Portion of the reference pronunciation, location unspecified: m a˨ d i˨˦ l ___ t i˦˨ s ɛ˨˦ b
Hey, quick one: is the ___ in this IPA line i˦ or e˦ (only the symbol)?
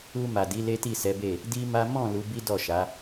e˦